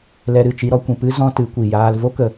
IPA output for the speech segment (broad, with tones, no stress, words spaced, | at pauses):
lɛ˧ɾɨ˦˨t͡ʃi˧ɾɔ˧ kʷĩ˨pɨ˦ zɔ̃˦tɨ˨˦kʷi˨ jaː˧lvo˦kə˧